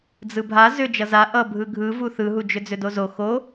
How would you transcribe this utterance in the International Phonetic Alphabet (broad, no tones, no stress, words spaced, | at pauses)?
d͡zɯbʱa zʏ d͡ʒʌza ʔʌbʱɯ ɡʱɯvu θɯɦud͡ʒʏ d͡zʏdozo xo